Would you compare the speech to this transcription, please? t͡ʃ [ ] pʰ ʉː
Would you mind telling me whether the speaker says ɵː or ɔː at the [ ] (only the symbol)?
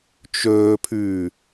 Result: ɵː